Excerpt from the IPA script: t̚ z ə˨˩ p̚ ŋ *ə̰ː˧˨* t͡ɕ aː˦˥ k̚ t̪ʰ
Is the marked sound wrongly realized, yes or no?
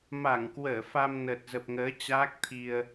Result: yes